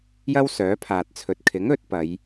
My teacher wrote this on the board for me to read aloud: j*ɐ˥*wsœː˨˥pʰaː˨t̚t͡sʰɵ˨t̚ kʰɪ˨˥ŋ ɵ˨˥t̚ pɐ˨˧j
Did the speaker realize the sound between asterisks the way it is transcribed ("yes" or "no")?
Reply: yes